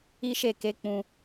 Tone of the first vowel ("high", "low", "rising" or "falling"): high